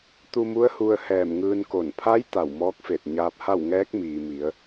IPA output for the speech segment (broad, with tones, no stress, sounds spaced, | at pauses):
t̪ u˧ m u˧˥ ə̯ h u˧ ə̯ h ɛː˧˩ m ŋ ɯː˧ n k o˧˩ n pʰ a˧˥ j t̪ a˧˩ w m ɔː˧˥ k̚ f e˧˩ t̚ ɲ aː˧ p̚ h a˥˨ w ŋ ɛː˧˥ k̚ m iː˩ m i˩˧ ə̯